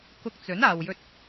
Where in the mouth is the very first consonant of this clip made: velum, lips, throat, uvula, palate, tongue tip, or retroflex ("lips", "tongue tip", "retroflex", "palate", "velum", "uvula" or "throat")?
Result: velum